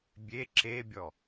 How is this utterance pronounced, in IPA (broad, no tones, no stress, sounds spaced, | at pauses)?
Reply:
bʲ e ǁ e bʲ ɔ